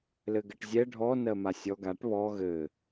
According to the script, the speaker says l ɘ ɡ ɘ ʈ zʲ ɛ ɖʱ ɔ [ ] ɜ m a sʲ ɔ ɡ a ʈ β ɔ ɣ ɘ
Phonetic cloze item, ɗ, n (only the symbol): n